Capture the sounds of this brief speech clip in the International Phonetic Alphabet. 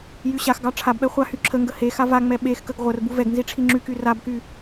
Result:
j y ɕ a x ɡ ɑ ʈ͡ʂʰ a b ɓ ɛ χʷ a h y ǁʰ ə ŋ ɡ ə h e x a v a ŋ͡m ɛ ɓ e x k ə ɡ ʁʷ ə r b u v ɛ ɡ n z i ʈ͡ʂʰ i ŋ͡ǁ y k y r a b k y

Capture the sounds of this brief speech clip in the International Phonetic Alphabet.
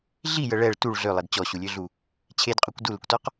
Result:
ɮ i j ə ɭ ɛ ɭ t u ɭ ɮ ø lˠ ɛ d t͡ɕ ɔ ɕ u lʲ ø ɮ u | t͡ɕʰ e d qʼ ø kʷ d u l ə kʷ t ɔ q

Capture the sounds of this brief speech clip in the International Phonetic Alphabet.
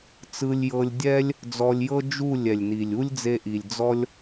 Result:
t͡s ɯ˧ lʲ j ɤ˧ lʲ dʲ ɛ˦ lʲ | d͡z ɔ˧ lʲ j ɤ˦ d͡ʒ u˦˨ lʲ ɛ˨ lʲ n i˨ lʲ u˦ lʲ d͡z e˧ ʔ i˨ lʲ d͡z ɔ˦ lʲ

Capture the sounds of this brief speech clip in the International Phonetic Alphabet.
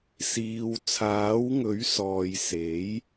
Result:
s iː˨ w t͡sʰ aː˨˥ w ŋ ɵ˨˥ ɥ s ɔː˨ j s e˨˥ j

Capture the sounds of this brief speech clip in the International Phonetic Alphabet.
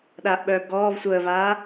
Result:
ɗ aː ʔ ɓ œː b ɡ ɔː v sʷ əː v aː

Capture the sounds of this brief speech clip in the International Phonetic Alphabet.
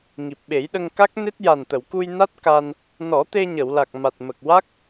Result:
ŋ i˨˩ p̚ ɓ e˨˩˦ j ɗ ə˧ ŋ k a˦˥ k̚ n e˦˥ t̚ j a˨˩ n t̪ ə˨˩˨ w k u˧ j n a˦˥ t̚ k a˧ n | n ɔ˨˩˦ t̪ e˧ ɲ ə˨˩˨ w l a˨˩ k̚ m a˨˩ t̚ m ə˨˩ k̚ w a˦˥ k̚

